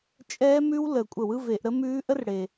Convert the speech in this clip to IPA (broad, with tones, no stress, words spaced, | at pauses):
t͡ʃʼɛː˦˥mʉ˦˥w ləː˨˩kʷʼə˧˩˧w ɯ˧˥˧ve˧˩˧ʔɾə˦˥mʉː˦˥ ʔə˦˥r ɽe˨˩